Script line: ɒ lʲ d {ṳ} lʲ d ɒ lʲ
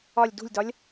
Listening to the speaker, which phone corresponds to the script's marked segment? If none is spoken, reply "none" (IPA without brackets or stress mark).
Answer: ṳ